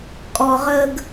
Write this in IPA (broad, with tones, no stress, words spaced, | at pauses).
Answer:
kʼɔ˨ʁəː˧ɡ